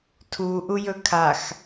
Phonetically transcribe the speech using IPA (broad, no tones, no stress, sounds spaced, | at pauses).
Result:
tʰ u ʔ u j ɵ kʰ a x